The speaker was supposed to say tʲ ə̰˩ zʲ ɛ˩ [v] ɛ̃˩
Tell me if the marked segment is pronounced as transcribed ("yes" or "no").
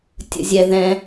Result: no